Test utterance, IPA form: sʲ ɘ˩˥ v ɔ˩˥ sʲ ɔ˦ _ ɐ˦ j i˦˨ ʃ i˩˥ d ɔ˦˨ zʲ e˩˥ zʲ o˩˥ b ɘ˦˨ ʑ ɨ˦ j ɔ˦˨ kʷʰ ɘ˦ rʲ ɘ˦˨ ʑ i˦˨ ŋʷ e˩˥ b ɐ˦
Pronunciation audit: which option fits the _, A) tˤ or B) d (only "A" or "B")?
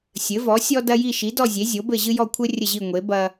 B